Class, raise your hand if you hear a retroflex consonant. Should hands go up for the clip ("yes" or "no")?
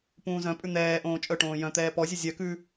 yes